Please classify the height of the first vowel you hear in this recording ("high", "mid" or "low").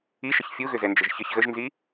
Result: high